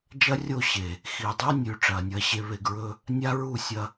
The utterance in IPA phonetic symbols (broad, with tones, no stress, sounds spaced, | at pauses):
d͡ʒ ɐ˦ rʲ o˦˨ ɕ e˨ | x i˨ dˤ e˦ nʲ ʉ˨˦ ʈ͡ʂ ɐː˨ nʲ ɐː˦ ɕ e˦ β e˦ ɡ ɹ ɵ˦ | nʲ a˦ ɹ u˦˨ sʲ ɐ˦